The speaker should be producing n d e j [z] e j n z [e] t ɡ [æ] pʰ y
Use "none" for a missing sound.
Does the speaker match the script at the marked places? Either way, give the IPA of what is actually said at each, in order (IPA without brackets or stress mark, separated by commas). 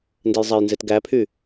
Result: zˤ, e, æ